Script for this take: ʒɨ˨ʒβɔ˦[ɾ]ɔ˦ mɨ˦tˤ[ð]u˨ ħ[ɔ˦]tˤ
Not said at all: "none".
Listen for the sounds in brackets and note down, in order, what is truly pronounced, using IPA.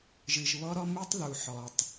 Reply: ɾ, ð, ɔ˨

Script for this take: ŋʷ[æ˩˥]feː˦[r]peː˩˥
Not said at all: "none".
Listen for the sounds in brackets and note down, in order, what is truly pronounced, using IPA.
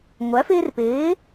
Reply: æ˩˥, r

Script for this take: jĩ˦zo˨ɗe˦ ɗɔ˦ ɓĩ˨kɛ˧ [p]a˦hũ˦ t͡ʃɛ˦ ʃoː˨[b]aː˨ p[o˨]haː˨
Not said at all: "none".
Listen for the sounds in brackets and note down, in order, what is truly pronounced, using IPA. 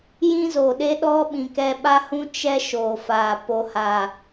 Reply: ɓ, f, o˨

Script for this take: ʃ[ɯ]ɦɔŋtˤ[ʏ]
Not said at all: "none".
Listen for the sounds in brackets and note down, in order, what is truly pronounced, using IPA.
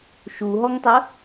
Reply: u, ə

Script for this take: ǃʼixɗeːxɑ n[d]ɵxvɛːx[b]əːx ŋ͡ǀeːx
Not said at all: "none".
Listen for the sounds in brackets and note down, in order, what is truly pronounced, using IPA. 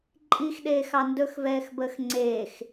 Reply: d, b

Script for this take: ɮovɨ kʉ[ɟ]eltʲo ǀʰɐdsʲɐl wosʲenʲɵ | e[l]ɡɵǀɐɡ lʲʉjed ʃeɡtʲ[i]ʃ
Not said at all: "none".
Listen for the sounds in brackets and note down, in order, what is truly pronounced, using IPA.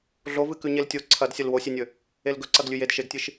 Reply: ɲ, l, ɨ

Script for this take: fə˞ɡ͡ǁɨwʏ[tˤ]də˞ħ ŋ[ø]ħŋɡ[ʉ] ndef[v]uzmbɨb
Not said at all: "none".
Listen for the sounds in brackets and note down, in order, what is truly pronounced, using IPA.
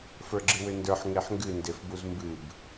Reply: n, e, ɨ, b

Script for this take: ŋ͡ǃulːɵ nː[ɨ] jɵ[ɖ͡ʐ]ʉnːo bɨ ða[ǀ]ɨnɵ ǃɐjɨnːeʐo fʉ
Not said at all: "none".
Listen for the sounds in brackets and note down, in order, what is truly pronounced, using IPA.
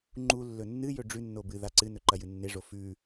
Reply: ɨ, ɖ͡ʐ, ǀ

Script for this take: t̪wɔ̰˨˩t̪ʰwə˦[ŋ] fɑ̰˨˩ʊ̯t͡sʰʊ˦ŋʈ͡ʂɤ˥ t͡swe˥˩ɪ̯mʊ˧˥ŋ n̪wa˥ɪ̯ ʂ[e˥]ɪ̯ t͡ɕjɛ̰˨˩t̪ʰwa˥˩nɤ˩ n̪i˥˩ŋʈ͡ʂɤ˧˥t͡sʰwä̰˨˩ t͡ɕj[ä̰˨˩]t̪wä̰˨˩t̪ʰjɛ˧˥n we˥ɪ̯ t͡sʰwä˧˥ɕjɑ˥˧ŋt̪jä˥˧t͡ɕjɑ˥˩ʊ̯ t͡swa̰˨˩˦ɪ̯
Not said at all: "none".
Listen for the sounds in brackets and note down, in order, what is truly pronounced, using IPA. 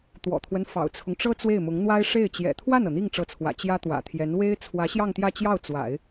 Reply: n, e˥˩, ä˥

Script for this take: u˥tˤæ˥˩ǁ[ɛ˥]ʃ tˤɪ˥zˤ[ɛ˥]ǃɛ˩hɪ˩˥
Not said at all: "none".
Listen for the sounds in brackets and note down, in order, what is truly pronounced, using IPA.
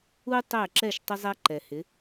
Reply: ɛ˥˩, æ˥

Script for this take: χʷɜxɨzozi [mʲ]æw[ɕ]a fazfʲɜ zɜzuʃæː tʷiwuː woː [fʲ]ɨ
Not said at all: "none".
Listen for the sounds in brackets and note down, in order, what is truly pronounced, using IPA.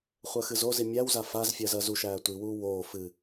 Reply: mʲ, z, f

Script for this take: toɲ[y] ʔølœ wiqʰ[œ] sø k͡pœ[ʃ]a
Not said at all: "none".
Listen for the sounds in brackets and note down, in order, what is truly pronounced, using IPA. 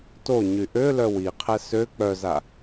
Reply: y, ɛ, z

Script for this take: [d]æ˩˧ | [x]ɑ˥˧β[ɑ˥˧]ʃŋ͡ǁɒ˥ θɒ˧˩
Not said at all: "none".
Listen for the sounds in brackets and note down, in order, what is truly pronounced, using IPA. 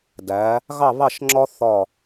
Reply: d, ɣ, ɑ˥˧

